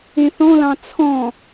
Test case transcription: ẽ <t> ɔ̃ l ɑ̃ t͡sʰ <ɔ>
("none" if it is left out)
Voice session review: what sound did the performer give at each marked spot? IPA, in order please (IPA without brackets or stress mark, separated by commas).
θ, ɔ̃